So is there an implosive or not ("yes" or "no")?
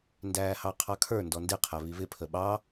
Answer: yes